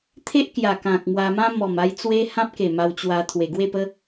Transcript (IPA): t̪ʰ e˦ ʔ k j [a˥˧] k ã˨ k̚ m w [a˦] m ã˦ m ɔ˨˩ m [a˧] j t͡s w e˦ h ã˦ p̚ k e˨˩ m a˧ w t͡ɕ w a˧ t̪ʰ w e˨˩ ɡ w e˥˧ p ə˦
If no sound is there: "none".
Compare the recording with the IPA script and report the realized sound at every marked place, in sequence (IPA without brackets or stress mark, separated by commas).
a˨˩, a˧, a˧